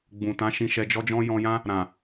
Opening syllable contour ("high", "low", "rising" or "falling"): low